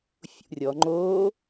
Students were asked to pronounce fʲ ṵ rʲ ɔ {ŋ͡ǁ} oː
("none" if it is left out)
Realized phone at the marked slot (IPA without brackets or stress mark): ŋ͡ǃ